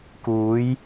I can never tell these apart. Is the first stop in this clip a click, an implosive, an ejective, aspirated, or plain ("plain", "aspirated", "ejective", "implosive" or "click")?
plain